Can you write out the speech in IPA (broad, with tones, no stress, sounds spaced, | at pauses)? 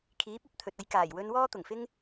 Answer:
kʰ iː˨˥ p̚ ɐ˨˥ p̚ t̪ʰ ɵ˨ t̚ ɐ˧ j k aː˨˩ j w ɵ˧ n w ɔː˥ t̪ ʊ˨˩ ŋ f ɪ˥ ŋ